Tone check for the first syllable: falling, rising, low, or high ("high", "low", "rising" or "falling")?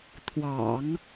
low